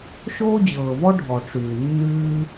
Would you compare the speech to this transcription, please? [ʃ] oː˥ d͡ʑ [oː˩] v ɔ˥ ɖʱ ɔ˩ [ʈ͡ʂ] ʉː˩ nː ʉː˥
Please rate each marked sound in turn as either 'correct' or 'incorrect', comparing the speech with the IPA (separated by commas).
correct, incorrect, correct